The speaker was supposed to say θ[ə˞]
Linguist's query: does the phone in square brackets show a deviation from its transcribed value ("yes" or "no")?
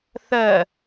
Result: yes